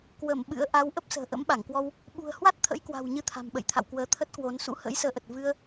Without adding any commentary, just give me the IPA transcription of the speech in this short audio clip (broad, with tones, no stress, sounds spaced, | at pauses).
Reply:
k w ə˧˩ m ɓ ɨ̰˧˥ ə̯ ʔ a˨˦ w ʔ ə˦˥ p̚ s ə̤ː˨˩ ʔ ə̰˧˥ m ɓ a˧˩ ŋ k w ɔ˧ w | ɓ ṳ˨˩ ə̯ h w a˦˥ t̚ t̪ʰ ə̰˧˥ j k w a̤˨˩ w ɲ ɨ˧ t̪ʰ a̤˨˩ m ɓ ə̰˧˨ j t̪ʰ a̰˧˨ w k w əː˨˦ t̪ʰ ə˦˥ t̚ k w o˨˦ n s ṵ˧˥ h ə̰ː˧˥ j s əː˨˦ ʔ ə˨˩ t̚ v ɨ˧ ə̯